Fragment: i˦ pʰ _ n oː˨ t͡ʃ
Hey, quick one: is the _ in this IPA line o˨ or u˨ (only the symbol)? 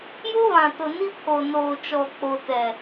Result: o˨